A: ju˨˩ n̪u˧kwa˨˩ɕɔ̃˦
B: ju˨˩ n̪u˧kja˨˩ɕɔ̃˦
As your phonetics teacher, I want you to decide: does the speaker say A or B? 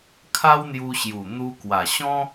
A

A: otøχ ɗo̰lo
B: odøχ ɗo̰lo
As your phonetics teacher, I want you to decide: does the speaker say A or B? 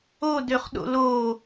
B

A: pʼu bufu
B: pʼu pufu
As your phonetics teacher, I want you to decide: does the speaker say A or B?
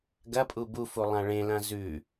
A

